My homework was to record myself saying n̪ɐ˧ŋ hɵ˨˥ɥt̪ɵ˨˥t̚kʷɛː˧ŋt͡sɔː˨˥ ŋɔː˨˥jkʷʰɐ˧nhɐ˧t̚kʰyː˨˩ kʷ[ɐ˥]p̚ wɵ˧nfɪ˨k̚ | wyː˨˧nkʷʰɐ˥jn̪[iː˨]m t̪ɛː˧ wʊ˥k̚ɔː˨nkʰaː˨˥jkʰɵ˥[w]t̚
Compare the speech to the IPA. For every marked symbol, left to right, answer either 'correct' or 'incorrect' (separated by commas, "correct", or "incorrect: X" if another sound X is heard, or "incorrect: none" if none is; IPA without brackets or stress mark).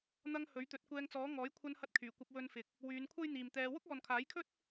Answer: incorrect: ɐ˧, correct, incorrect: none